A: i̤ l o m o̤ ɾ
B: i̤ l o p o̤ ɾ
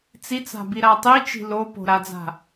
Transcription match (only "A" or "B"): B